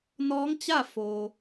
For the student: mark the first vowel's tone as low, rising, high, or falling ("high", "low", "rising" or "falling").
rising